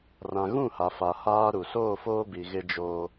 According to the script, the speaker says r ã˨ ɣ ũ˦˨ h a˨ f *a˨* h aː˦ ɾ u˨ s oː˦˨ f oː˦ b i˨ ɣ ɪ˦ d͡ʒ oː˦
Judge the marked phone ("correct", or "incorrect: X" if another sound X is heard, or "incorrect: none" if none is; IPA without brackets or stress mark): correct